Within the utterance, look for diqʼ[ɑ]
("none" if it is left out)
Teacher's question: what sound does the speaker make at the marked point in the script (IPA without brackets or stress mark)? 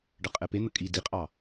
ɑ